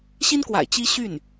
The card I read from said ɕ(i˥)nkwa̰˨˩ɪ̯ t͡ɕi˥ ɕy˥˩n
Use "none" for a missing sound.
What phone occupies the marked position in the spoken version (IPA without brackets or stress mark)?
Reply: i˥